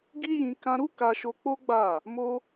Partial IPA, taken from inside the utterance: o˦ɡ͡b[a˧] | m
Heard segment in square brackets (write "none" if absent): a˦˨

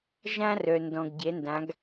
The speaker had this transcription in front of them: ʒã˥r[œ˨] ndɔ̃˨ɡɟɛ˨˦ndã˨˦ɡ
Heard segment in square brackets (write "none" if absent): œ˨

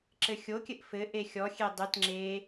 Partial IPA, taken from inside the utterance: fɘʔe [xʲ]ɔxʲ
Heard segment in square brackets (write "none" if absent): xʲ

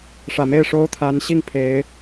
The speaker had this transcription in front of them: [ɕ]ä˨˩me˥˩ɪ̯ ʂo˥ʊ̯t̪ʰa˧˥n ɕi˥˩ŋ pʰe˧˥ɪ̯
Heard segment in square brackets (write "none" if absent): ʂ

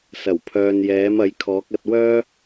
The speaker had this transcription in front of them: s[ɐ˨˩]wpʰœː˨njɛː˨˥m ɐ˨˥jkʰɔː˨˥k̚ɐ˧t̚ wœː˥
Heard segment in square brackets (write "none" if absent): ɐ˨˩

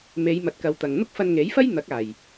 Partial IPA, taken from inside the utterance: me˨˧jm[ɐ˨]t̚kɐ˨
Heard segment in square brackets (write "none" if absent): ɐ˨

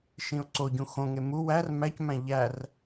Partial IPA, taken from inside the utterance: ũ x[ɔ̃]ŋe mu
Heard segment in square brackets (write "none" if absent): õ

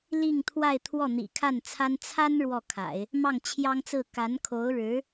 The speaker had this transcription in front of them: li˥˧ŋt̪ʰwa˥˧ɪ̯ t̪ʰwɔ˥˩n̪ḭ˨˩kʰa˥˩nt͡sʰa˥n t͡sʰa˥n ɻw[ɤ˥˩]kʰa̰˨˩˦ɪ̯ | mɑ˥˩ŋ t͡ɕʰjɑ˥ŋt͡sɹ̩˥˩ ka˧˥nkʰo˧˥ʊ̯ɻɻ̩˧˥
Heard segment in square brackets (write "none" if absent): ɔ˥˩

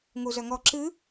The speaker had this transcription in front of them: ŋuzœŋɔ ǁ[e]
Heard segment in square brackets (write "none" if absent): ɨ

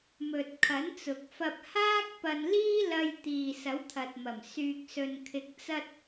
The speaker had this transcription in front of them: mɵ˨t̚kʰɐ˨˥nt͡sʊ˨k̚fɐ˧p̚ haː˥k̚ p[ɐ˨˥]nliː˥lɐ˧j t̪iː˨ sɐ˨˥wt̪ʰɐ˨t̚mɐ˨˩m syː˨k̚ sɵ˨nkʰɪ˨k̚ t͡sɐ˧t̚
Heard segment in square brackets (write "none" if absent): ɐ˧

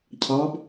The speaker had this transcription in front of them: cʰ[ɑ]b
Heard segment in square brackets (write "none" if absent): ɑ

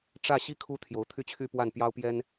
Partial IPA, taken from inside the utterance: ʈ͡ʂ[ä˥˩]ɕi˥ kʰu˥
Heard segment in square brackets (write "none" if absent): ä˥˩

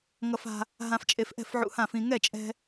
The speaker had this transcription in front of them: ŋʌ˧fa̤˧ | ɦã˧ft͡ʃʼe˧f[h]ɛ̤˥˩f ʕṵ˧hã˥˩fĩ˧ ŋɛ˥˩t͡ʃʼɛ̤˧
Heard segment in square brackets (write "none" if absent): ʔ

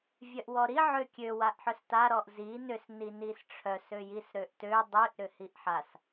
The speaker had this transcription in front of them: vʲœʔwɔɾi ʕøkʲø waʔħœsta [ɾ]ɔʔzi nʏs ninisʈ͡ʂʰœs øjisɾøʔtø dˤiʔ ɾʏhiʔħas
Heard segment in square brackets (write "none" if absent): ɾ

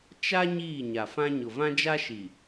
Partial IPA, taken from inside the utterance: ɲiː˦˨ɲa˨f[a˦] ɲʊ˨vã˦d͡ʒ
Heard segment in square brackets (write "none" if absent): ã˦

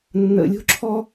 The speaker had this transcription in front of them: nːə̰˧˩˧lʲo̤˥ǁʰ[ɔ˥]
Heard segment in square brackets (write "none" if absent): ɔ˥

